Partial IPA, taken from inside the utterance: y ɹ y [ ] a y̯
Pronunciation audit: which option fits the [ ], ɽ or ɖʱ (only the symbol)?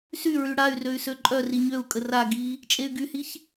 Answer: ɽ